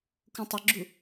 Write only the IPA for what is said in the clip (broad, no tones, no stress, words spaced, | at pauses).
kũtˤʌɡ͡ǁu